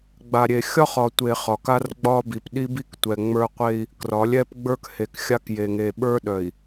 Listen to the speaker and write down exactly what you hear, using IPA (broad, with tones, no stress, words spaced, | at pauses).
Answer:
ɡ͡ba˨ɾʲe˨xʲɒ˦χɒ˨ tʷe˨ χɒ˨ka˦r ɡ͡bɒ˦bi˨p ɗi˦bi˦ktʷɛ˨ ŋ͡mə˞˦qʷe˦i̯ | krɒ˨˦lʲɛ˦pɡ͡bə˞˦k he˨kxʲa˦k je˨ŋe˨ɓə˞˦ɗœ˨i̯